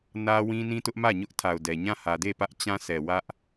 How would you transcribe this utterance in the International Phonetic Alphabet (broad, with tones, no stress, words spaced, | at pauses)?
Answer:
nä˦wĩ˦ nĩ˦tʊ˦ʔmä˦˨ ɲʊ˦ʔtʰa˨ʊ̯dɛ˨ ɲã˦˨hä˨ de˦˨pä˦ʔ t͡ɕã˦sɛ˨wä˦ʔ